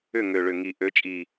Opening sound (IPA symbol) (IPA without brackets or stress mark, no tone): ʏ